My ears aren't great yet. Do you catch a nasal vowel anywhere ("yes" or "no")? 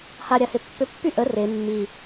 no